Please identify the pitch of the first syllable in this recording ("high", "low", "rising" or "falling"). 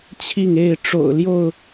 falling